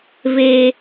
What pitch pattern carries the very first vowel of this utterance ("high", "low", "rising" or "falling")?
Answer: low